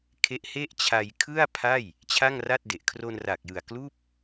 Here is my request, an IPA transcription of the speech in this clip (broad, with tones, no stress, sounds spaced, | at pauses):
kʰ e˦˥ ʔ h e˥˩ ʔ t͡ɕʰ a˧ j kʰ ɯ˥˩ a̯ pʰ a˥˩ j | t͡ɕʰ a˥˩ ŋ r a˥˩ t̚ d e˨˩ ʔ kʰ r o˧ n r a˨˩ k̚ j ɯ˨˩ a̯ k l uː˥˩ p̚